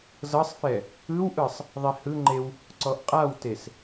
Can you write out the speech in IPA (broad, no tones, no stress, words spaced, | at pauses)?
zɤsˤfɛ | ɯwʔɯsˤ | ðˤihɯŋ͡ǃew | ǀɔʔqʼawtes